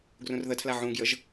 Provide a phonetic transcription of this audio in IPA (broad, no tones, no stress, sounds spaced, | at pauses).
ɡ r ũ r ð ə tʰ l a ʕ ũ ɡ j ə ʒ